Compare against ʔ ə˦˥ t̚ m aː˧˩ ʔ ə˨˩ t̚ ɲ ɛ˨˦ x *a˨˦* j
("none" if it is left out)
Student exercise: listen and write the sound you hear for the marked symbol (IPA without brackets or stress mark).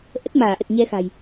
a̤˨˩